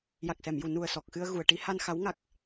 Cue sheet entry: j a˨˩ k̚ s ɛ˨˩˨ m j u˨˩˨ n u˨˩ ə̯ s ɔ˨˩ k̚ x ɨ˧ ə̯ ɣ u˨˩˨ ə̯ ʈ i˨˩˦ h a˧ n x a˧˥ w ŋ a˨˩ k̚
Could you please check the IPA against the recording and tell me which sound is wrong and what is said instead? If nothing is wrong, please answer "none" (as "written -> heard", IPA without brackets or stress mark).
none